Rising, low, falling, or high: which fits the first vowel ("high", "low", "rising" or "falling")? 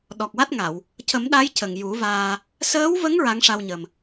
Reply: low